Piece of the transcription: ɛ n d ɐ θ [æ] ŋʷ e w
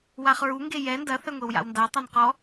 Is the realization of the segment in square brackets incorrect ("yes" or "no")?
yes